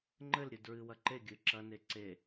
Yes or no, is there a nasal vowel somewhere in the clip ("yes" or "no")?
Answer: no